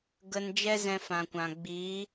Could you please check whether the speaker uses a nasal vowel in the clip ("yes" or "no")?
yes